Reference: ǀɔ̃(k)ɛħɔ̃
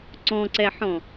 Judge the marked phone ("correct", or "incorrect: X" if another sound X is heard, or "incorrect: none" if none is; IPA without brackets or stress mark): incorrect: ǀ